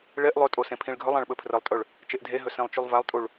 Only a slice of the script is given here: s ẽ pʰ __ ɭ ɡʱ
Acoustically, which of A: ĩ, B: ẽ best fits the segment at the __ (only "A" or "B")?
A